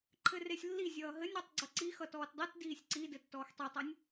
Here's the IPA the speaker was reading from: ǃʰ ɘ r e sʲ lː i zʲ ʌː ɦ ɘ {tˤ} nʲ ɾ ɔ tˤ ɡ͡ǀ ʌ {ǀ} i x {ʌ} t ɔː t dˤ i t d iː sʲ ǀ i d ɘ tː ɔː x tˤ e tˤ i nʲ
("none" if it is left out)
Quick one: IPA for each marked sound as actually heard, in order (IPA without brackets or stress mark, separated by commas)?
none, ǀ, ʌ